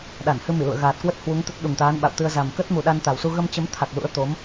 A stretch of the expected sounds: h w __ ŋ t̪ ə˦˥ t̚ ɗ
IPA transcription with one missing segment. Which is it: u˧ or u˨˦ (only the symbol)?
u˨˦